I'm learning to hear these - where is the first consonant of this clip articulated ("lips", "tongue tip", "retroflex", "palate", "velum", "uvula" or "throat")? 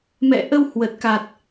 lips